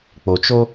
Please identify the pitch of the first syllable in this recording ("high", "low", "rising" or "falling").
low